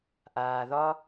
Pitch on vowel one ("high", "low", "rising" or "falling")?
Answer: low